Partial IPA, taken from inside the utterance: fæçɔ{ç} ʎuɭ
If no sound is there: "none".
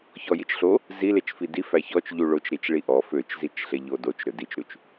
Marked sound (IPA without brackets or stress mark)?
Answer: t͡ʃ